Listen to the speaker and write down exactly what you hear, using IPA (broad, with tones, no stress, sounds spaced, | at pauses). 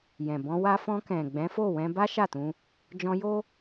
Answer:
j ɛ̃˨ b ɔ̃˧ w a˧ f ɔ̃˧ k ɛ̃˨ ɡ͡b ɛ̃˨˦ f o˦˨ w ɛ̃˧ b a˦ ʃ a˦˨ t ũ˧ | d͡ʒ ɔ̃˧ j o˦